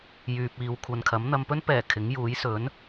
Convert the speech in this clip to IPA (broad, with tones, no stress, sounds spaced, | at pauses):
j yː˨ p̚ iː˨˧ w kʷʰ ɐ˨ n kʰ ɐ˨˥ m n̪ ɐ˨ m p ɵ˥ n p ɛː˨˩ kʰ ɪ˨˥ ŋ j uː˨˥ j s ɵ˨˥ n